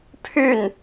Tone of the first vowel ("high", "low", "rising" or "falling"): falling